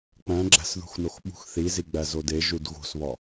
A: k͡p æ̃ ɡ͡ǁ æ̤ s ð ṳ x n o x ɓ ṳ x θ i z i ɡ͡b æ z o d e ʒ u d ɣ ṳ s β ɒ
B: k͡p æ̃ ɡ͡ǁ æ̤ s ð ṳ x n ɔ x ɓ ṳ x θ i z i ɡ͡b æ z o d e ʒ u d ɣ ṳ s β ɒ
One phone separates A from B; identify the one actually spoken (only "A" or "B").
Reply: A